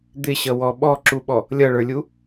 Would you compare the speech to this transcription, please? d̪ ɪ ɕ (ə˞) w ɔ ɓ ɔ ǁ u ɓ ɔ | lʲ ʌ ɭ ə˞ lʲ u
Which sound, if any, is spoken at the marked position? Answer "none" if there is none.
ʌ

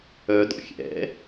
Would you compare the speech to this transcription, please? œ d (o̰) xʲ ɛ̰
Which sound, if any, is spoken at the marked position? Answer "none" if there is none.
ɔ̰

